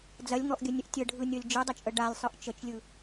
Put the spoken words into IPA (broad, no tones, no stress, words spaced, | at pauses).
d͡zɐlʲŋɔʔɡʲənʲəʔ tʲəɖʱɯnʲɔlʲ d͡ʒɯdˤət͡ʃʼə ɖalʲsˤɯʔ t͡ʃət͡ʃlʲɯ